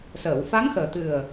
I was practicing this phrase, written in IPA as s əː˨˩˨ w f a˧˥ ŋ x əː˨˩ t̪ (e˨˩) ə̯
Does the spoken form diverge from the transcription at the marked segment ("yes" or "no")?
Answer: yes